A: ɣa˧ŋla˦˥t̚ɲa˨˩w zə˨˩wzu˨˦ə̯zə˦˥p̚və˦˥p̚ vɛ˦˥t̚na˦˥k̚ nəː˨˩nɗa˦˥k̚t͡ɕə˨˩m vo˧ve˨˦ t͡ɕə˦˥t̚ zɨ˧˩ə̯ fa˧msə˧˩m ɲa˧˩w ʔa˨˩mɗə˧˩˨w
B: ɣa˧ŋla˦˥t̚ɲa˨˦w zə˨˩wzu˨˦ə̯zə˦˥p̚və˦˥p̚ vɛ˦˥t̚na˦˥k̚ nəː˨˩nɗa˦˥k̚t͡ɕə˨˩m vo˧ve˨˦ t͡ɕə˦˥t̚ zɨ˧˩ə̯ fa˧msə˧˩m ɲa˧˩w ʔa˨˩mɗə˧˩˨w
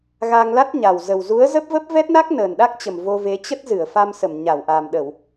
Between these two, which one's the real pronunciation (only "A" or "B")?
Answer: A